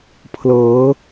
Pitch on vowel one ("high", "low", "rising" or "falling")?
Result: rising